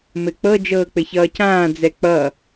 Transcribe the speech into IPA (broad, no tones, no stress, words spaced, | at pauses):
mɘk͡pɤ d͡ʒɤːk͡pɘçʌːcãː d͡zɛk͡pʌ